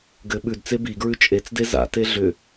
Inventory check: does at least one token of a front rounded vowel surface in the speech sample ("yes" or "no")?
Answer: yes